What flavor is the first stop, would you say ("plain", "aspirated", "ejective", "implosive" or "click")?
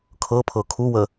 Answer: aspirated